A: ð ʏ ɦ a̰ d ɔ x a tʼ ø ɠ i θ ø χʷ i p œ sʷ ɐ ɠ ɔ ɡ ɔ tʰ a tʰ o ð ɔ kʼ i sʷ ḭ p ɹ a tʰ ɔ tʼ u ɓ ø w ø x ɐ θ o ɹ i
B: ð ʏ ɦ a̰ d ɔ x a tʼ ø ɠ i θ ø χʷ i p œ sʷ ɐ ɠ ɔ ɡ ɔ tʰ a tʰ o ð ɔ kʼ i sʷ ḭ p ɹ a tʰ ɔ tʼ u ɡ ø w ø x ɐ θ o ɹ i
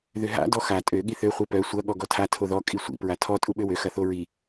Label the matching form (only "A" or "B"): A